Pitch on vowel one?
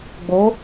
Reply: rising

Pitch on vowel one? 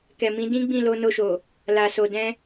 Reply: low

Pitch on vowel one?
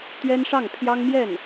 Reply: high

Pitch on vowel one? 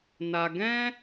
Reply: high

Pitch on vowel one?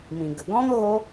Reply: low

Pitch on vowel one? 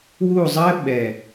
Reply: falling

